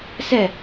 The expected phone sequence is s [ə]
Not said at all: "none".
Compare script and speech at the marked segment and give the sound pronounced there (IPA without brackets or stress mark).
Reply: ɛ